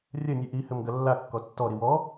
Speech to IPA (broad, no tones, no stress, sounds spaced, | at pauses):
rʲ ɐ nʲ ɨ ʔ i h ɘ m ɡ ɐ lː a kː ɔ tː ɔ ɾ i w ɔ